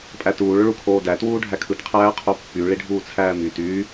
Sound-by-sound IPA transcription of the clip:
pʼ æ t uː ɭ ø ɭ u kʰ oː d æ t w uː ɖʱ æ kʰ ɯ t qʰ æː qʰ o pː y ɭ i ɖʱ uː t͡sʰ æː m y t yː

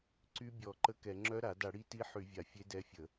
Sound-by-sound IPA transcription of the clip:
ǀ y˧˥ bʲ ɔ˧˩˧ ǃ ə˧˥ k ɛ˧˩˧ ŋ͡ǁ œ˧˥ ɾ a˧˩˧ d a˧˩˧ ɽ i˧˥ t i˧˥ ħ y˧˩˧ vʲ a˧˩˧ fʲ e˧˥ d ɛ˧˥ fʲ ə˧˩˧

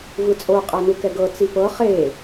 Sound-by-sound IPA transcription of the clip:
v ɯ t͡sʼ o qʼ a n u k ɛ ɡ ɤ t͡s i p ɤ χ e

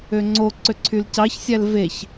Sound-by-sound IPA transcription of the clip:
ø ŋ͡ǀ o ǀ ø ǀʰ y l c ɑ ç sʲ æ l v e ç

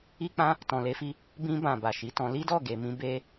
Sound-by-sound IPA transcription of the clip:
i˦ k͡p ã˦ | t ɔ̃˨ l e˧ f i˧ | b ĩ˧ b ã˨ b a˨ ʃ i˨˦ t ɔ̃˧ l i˦ d ɔ˦˨ ɡ e˨ m ĩ˧ b e˧

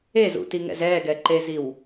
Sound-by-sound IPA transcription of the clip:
e z ṵ t i ŋ ɛ̰ z ɛ ɡ ɛ ǃ e z i w

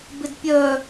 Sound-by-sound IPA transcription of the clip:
b ɪ d pʲ œ

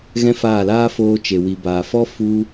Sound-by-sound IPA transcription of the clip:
ɣ ɛ̃˦ f aː˦˨ l aː˦ f oː˧ t͡ʃ e˨ w i˨ b aː˨ f ɔ˦ f u˦

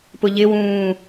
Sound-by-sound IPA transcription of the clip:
p ʊ ʎ ɪ w ũː

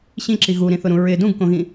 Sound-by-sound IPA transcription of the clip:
ɕ ĩ ǁ i ɣ u ɾ ĩ θ ʊ ɾ ũ ɹ ɪ d ũ ɡ k õ ɣ ĩ

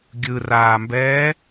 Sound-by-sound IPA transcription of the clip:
ɡʲ ɯ r aː m b ɛː

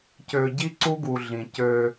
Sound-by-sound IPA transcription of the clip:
c ø˨ ɟ i˦ ǀ u˦ ɡ u˨ ɮ ĩ˨ c ø˦

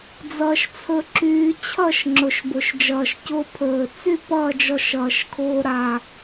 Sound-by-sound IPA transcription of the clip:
d͡z ʌː˧ ʃ t͡sʰ ɵ˧ ǁ yː˧ t͡ɕʰ ʌ˥˨ ʃ ŋ͡ǁ ʊ˨˩ ʃ b ʊ˨˩ ʃ d͡ʒ ʌː˨˩ ʃ c ʊ˧ pʰ ɵː˨˩ t͡s y˥˨ p ʌː˥˨ d͡ʒ ɔ˧ ʃ ʌː˨˩ ʃ kʰ ʊː˧ ɾ a˨˩

